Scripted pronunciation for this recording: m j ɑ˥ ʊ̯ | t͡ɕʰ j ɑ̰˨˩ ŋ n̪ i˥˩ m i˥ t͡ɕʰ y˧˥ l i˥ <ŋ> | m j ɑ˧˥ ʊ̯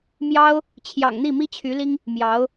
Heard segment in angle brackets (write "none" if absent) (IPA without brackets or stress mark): ŋ